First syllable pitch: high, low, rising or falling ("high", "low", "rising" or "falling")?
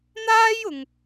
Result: high